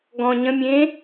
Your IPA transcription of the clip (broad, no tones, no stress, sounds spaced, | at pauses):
ɡ ɔ̃ ɲ ə̃ mʲ ẽː